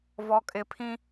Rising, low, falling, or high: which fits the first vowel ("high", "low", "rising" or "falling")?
high